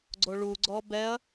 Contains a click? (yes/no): yes